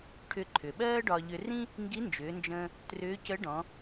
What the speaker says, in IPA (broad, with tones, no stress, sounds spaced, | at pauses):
ʈʰ ʏ˧ ǃʰ ʏ˩ ɓ ɜː˥ ɖ ɒ˧ ʎ ʏ˧ r ĩ˥ | ŋ ɡ i˧˥ n d͡ʒ ʏː˩˧ n d͡ʒ ə̃ː˧ | t r ʏː˧˥ c ə˧˥ ɖ ɔ̃˩˧